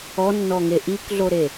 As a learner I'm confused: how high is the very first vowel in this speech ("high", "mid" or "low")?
mid